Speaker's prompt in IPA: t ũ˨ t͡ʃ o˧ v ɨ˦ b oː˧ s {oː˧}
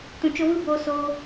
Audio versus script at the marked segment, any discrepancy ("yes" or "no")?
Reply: no